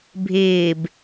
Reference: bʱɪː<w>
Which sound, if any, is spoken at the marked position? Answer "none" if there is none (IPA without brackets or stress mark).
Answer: b